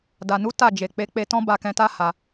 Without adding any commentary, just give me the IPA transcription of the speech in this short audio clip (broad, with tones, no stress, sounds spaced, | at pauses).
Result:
d a˨ n u˨˦ t a˦˨ d͡ʒ e˨ k͡p e˨˦ k͡p e˧ t ɔ̃˦ b a˧ k ɛ̃˧ t a˦ h a˧